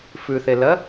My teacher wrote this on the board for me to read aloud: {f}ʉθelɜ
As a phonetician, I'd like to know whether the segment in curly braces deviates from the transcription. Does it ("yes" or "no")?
no